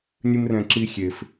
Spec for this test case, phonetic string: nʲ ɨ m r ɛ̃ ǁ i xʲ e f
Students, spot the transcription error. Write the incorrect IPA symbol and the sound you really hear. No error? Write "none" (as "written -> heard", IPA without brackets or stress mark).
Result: none